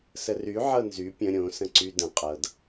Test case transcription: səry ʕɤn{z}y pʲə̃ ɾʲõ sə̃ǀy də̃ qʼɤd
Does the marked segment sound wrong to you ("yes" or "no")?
no